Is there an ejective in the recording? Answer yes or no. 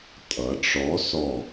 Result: yes